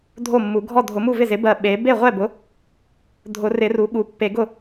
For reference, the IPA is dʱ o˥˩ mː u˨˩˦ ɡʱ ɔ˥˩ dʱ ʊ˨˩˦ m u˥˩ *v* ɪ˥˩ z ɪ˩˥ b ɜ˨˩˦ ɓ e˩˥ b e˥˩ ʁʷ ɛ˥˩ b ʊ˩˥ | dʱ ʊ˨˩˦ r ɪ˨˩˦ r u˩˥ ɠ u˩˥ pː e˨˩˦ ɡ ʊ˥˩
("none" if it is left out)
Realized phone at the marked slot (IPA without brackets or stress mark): v